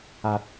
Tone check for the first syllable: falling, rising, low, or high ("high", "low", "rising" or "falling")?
high